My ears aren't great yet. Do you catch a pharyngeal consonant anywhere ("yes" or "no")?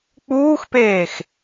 no